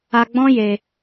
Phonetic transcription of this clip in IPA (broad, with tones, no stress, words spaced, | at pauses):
a˧ɡ͡bɔ̃˦ je˧